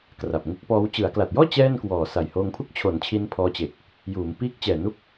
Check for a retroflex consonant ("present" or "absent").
absent